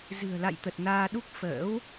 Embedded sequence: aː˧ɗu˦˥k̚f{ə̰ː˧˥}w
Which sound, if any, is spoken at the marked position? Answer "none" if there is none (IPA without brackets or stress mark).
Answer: ə̰ː˧˥